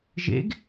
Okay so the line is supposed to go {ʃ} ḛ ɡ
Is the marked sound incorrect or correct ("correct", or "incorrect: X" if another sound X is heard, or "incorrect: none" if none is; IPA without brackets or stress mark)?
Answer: incorrect: ʒ